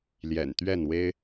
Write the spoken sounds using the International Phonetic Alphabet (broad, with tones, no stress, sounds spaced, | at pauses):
l j ɛ̰˨˩ n t̪ ɥ ɛ˥˨ n w e˦ ɪ̯